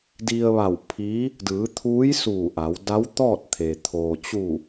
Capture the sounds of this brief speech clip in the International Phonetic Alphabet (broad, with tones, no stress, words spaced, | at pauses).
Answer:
di˧ə̯ʋa˧˩w pʰi˧˥ | dɯː˩˧t̪ʰuː˧˥j suː˧˩ʔa˩˧w da˧˥wt̪ɔː˥˨t̚t̪ʰe˩ t̪ʰoː˩t͡ɕu˧˩